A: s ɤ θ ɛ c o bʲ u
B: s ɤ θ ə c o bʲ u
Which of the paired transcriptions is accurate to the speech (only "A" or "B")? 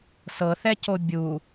A